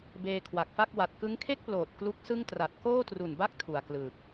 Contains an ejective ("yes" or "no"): no